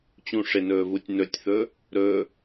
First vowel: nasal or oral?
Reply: nasal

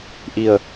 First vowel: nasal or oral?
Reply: oral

